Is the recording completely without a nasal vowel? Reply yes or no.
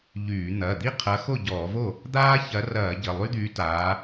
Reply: yes